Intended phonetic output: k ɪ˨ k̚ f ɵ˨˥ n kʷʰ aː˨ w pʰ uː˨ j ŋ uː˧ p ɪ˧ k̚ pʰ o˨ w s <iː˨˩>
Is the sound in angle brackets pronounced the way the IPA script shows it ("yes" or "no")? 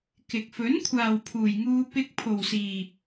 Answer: no